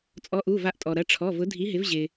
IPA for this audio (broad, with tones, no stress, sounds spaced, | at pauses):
t͡sʼ ɔ˨˥ ʔ u˩˧˩ v a˨˥ ʔ tʼ ɔ˩ ɾ ɐ˩˧˩ ʈ͡ʂʰ ɔ˩˧˩ v ʊ˨˥ dʱ i˨˥ ɦ ɪ˨˥ v ʑ ɪ˩